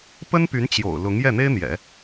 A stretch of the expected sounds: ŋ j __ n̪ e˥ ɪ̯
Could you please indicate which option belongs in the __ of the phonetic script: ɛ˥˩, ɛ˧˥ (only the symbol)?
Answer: ɛ˥˩